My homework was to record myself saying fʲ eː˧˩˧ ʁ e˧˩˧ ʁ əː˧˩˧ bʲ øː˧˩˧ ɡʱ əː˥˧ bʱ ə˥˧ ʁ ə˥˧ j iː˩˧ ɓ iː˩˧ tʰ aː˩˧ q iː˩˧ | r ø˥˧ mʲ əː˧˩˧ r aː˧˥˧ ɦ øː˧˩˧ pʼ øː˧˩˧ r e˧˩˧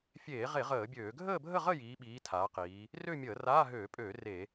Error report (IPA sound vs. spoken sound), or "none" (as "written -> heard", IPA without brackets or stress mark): none